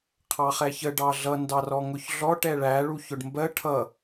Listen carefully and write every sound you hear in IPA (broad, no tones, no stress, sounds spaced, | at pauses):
qʰ ɑ χ ɛ ç ə ɖ ɑ ɮ ʌ n d ɑ r ɔ ŋ ʊ ç ɮ ɔ ʈ ɛ ɭ æ ɭ u ç ʊ ɖ m b ɜ ʈʰ ʌ